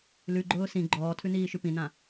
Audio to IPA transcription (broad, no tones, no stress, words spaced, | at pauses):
lʉɡ͡ǃʊː sĩ ɡ͡ǃɔːtʰʉniːʃʉ pĩnã